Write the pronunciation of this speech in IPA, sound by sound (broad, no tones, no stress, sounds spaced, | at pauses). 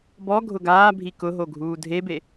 b ɔ ɡʱ ʊ ɡ aː bʱ i k ʊ ɦ o ɡʱ uː dʱ e b e